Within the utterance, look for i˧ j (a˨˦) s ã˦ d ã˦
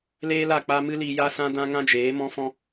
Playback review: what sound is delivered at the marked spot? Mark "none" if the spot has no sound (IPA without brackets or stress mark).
a˦